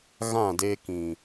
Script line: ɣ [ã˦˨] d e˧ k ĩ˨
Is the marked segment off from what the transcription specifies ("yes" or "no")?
no